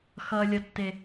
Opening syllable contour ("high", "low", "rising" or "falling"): low